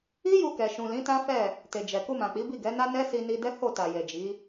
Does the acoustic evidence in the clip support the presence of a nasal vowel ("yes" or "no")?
yes